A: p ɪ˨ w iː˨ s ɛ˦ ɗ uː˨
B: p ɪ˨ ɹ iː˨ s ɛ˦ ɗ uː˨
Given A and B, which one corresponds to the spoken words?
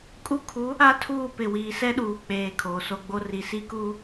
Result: A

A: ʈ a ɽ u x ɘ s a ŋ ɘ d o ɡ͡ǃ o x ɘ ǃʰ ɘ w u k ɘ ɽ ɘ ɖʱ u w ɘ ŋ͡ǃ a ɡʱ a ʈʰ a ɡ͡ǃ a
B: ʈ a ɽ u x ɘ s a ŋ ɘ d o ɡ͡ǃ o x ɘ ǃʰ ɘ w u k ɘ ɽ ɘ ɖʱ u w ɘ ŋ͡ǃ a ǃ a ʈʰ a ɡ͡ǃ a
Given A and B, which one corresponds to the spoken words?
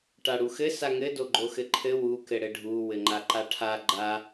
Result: B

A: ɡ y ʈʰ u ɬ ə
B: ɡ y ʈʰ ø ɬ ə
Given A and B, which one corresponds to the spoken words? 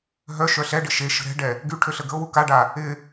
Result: B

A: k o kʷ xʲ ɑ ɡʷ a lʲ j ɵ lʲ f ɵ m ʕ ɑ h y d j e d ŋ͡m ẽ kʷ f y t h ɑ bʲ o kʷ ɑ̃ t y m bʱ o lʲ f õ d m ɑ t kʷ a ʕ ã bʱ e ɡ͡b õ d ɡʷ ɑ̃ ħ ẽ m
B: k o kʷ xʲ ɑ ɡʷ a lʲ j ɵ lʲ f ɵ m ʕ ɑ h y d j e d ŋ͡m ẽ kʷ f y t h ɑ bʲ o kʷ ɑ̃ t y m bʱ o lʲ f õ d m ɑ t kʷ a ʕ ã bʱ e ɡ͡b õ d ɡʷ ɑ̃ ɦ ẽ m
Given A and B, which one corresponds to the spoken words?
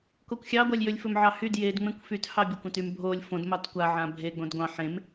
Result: A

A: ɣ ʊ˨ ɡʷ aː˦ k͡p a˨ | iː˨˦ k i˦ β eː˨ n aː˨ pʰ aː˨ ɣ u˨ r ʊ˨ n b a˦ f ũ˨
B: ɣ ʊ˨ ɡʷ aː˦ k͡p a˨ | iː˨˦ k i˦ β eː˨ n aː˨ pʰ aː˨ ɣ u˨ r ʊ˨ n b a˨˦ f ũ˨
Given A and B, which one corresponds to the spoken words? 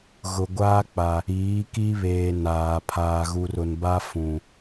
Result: A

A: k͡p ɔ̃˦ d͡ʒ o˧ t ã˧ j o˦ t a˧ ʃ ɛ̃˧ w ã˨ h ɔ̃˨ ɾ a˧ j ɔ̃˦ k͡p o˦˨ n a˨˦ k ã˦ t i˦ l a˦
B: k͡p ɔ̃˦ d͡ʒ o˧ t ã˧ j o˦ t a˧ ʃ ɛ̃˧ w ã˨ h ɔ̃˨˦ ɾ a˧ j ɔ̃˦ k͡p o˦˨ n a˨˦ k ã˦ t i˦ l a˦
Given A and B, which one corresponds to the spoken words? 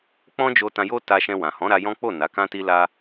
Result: B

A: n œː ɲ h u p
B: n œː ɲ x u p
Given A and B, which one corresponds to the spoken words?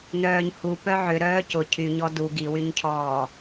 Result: A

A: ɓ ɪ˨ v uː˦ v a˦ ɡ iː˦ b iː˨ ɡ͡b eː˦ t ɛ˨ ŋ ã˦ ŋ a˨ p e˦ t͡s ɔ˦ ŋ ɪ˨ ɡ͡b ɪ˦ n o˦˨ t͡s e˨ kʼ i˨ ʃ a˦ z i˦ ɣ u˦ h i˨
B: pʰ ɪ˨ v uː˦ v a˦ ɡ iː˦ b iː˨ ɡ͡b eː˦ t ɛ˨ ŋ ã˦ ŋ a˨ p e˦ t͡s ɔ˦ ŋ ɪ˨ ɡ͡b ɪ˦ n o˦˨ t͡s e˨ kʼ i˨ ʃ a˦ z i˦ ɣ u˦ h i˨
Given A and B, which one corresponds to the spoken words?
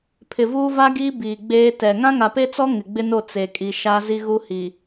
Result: B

